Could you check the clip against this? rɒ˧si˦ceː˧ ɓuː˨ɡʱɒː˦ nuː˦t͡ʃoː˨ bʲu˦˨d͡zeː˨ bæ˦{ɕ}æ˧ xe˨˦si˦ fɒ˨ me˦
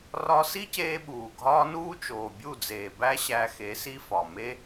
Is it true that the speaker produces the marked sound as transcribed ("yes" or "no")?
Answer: yes